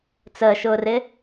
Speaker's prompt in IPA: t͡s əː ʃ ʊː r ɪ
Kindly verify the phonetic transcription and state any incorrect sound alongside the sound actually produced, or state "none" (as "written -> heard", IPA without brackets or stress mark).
none